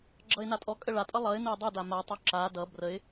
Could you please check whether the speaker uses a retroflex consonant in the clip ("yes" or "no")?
yes